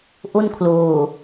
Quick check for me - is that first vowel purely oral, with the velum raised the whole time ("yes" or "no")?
yes